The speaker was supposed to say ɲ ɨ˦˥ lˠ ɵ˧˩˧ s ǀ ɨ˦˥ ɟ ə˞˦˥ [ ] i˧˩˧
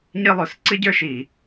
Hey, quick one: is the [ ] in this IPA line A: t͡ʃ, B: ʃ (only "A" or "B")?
B